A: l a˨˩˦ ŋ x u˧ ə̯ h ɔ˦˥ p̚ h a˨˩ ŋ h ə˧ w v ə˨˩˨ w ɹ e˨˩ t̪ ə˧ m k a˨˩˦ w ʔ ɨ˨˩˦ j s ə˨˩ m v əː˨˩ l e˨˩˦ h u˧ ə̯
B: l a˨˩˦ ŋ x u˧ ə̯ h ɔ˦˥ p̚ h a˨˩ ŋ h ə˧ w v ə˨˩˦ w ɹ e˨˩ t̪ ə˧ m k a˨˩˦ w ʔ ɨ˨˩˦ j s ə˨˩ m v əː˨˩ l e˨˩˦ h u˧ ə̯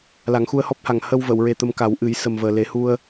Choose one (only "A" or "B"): A